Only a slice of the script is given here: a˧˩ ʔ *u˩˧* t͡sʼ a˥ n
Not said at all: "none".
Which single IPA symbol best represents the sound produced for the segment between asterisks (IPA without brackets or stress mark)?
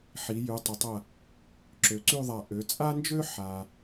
ø˩˧